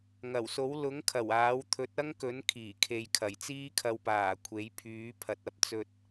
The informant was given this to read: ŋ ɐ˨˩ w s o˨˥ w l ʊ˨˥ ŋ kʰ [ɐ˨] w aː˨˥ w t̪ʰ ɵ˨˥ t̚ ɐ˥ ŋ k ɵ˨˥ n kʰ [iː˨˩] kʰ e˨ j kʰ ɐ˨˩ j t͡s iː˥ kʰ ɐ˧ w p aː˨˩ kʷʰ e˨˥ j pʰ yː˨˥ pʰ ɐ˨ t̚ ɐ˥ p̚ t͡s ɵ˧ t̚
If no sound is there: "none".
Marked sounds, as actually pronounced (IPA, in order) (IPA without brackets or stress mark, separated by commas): ɐ˨˩, iː˨˩